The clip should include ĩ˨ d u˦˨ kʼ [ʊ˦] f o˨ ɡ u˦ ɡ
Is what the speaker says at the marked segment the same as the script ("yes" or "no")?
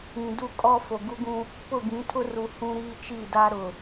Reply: no